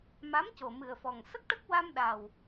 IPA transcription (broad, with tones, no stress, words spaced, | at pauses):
ma˧˥mco˨˩mɨ˨˩ə̯fɔ˨˩ŋ sə˦˥k̚ʈə˦˥k̚wa˧mɗa˨˩w